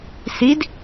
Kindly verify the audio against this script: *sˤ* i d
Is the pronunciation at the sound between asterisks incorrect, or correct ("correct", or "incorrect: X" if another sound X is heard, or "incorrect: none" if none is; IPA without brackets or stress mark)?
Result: incorrect: s